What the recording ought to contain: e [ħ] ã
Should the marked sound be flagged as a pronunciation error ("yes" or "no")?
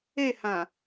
yes